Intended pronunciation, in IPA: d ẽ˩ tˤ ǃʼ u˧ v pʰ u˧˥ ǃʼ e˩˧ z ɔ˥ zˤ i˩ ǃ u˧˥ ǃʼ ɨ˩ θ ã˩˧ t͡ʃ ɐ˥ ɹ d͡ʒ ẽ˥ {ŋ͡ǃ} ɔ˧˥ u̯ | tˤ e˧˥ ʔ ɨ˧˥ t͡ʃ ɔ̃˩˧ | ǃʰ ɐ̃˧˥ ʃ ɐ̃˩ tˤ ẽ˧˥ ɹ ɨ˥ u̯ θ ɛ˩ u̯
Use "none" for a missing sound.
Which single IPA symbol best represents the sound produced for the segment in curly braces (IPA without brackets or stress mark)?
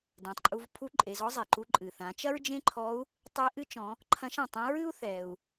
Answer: ǃʰ